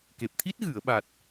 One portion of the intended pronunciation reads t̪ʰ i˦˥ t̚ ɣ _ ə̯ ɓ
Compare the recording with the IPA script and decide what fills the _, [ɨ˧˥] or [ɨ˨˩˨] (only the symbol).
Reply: ɨ˨˩˨